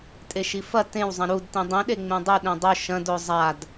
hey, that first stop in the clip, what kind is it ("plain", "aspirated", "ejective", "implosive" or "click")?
ejective